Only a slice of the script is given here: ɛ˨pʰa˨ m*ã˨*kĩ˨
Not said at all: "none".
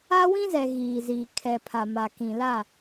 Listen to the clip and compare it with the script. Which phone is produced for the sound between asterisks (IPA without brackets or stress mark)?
a˨